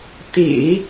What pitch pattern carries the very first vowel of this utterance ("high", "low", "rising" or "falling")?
low